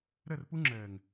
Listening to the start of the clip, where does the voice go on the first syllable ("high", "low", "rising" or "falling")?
falling